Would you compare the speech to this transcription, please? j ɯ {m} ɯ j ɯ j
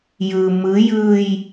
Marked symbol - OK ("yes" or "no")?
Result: yes